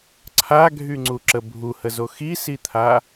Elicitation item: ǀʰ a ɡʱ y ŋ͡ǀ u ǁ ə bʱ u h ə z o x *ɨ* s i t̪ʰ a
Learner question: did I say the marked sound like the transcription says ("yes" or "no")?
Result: no